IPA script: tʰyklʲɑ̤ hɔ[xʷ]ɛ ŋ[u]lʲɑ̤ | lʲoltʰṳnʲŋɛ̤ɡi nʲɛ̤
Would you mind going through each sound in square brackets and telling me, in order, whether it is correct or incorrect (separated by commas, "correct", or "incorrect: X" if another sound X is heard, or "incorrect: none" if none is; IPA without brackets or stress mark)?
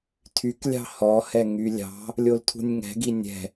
incorrect: h, incorrect: y